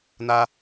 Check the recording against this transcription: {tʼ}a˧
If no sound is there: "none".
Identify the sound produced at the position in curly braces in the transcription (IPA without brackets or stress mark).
n